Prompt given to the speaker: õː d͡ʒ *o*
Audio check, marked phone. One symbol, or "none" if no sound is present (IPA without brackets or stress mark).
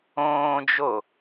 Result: o